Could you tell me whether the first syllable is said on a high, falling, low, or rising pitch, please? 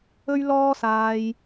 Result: high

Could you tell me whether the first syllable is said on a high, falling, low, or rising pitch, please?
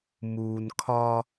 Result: low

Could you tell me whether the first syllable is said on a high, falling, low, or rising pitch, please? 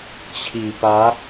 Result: low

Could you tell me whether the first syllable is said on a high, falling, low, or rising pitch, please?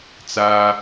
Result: high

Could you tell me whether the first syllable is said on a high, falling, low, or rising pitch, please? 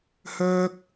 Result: high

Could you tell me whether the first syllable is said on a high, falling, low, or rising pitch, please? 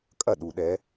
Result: falling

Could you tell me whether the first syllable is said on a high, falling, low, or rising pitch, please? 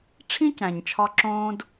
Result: high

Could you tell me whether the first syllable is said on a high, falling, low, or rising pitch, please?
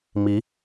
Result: rising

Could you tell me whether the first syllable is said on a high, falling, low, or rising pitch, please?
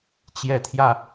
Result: rising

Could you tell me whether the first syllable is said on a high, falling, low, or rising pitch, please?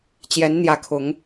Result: rising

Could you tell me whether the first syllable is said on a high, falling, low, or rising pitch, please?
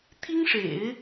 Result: high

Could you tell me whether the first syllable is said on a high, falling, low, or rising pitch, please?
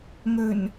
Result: low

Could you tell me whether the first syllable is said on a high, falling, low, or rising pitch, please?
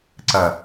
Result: low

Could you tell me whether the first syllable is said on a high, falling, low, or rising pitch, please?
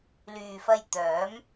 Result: low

